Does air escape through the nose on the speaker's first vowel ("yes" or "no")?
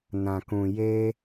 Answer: yes